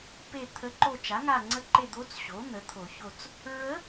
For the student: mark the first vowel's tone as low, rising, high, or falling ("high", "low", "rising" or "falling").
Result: falling